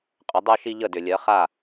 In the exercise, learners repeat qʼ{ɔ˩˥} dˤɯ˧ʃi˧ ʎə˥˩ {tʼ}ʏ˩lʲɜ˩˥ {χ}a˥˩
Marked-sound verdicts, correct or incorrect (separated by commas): incorrect, incorrect, correct